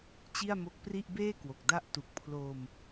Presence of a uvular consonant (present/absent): absent